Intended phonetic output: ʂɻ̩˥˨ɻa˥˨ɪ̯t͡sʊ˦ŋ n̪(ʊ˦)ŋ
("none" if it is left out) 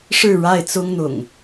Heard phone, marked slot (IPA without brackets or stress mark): ʊ̰˨˩